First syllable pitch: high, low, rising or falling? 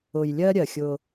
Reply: low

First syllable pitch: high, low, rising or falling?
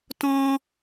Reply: high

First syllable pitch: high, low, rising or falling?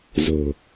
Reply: low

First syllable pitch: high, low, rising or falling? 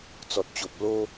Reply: low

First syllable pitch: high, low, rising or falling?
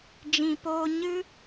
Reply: low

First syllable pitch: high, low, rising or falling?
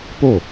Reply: falling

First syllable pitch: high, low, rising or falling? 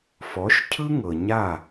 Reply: rising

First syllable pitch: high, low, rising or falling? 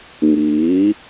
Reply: rising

